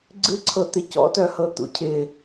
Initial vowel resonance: oral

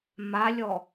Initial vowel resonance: oral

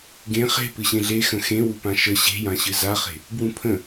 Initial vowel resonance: nasal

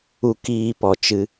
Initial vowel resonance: oral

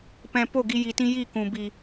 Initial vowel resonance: nasal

